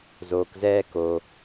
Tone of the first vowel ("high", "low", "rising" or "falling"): low